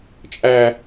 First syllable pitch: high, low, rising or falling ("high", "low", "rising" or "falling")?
high